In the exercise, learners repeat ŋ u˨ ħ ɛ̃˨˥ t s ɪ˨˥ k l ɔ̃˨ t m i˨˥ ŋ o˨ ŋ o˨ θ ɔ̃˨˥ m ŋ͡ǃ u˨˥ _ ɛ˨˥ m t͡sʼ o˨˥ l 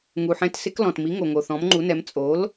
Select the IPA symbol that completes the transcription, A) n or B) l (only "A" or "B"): A